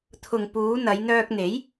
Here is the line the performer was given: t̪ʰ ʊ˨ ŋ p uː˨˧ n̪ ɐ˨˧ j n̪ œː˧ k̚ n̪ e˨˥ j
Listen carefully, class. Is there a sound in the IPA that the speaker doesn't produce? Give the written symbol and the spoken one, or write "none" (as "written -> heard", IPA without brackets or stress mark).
none